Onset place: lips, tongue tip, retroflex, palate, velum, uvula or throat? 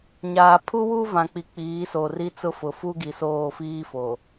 palate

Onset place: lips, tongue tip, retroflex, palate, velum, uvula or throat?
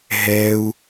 throat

